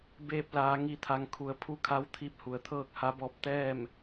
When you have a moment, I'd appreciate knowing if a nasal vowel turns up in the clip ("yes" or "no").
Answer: no